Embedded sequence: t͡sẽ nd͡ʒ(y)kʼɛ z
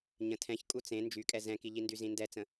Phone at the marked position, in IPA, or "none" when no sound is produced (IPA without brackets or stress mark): y